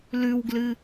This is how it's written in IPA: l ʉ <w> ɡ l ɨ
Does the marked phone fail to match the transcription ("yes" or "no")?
no